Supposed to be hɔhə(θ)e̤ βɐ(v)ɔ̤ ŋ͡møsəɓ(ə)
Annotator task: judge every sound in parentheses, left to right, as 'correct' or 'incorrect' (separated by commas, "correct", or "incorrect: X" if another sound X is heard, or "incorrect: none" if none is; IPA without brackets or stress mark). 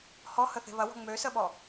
correct, incorrect: w, incorrect: ɔ